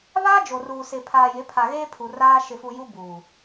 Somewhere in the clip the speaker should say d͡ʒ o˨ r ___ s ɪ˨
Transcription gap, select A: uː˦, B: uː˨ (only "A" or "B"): B